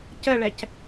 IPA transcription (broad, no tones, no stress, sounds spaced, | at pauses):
c ə ɭ ɛ c